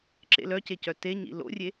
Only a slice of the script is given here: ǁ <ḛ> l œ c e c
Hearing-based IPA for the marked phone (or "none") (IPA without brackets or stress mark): ḛ